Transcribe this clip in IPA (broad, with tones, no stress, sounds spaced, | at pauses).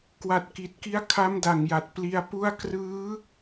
k w a˨˩ t̚ k i˨˩ t̚ k i˦˥ a̯ kʰ a˦˥ m d a˨˩ ŋ j a˨˩ t̚ p l i˧ a̯ p u˥˩ a̯ k r ɯː˦˥